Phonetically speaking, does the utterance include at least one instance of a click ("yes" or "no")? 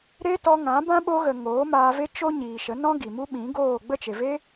no